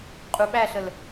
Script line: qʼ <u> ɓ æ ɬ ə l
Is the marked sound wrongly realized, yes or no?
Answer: no